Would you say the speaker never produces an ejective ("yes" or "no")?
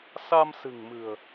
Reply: yes